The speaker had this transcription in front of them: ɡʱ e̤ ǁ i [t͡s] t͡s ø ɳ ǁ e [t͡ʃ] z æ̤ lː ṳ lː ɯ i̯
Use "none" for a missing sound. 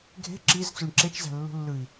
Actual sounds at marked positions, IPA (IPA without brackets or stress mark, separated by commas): z, t͡ʃ